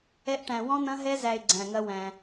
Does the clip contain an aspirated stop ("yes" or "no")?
no